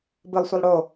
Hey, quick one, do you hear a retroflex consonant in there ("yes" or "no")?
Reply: yes